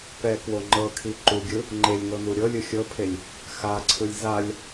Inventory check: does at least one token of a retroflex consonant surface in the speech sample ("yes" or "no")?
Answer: no